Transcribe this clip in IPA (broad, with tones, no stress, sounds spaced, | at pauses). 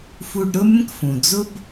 f u˧ ɖ ɾ ʊ˥ mʲ ə̃˥ k f ũ˩ d͡z ʊ˥ b